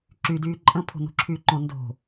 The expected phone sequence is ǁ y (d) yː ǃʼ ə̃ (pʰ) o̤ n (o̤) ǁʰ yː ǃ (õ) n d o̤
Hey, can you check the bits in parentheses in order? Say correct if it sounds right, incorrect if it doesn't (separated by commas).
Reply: correct, correct, correct, correct